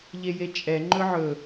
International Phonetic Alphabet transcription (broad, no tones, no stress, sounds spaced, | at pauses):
ʎ e j e t͡ʃʼ ɛ ŋ͡ǃ ɵ ʕ ɵ